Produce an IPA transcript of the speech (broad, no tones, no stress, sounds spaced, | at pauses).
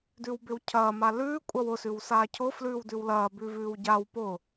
d ʉ w b ɪ w cʰ ɐː m a l ʉː kʷʼ ɐ w ʊ s ʉ w s aː cʰ ʊ f l ʉː w d ʉ w l ɐː b ʉ v ʉː w ɟ a w p ʊ